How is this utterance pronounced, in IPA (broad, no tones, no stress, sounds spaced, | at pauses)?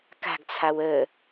k a̤ ɡ t͡sʰ a w ə